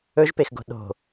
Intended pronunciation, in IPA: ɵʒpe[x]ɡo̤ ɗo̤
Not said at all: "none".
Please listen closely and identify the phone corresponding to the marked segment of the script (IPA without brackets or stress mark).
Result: x